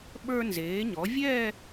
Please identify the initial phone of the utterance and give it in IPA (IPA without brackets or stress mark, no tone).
ɓ